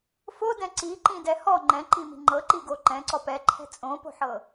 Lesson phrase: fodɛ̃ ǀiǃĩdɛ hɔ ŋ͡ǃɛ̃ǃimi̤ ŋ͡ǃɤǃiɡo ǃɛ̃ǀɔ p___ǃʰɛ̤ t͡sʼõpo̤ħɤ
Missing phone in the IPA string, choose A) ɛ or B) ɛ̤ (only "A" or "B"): A